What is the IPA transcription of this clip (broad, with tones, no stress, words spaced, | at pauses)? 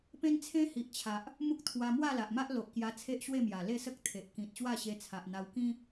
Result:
pẽ˦nt͡sʰẽ˦hi˨ʔ t͡ɕʰa˨ʔ | mu˦k̚ t̪ʰwa˧mwa˥˧la˨ʔma˦ʔ lo˨ʔkja˧ t͡sʰe˦ʔɕwe˥˧mja˨˩ le˥˧sə˦k̚ t̪ʰe˨ʔ kĩ˨t̚ ɕwa˥˧ɕe˧ t͡sʰa˨ʔn̪a˧wkĩ˦